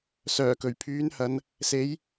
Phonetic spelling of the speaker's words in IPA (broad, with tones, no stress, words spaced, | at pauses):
sœː˨˩kɵ˨˩ɥpʰyː˨˥nhɐ˨˧n | se˨˥j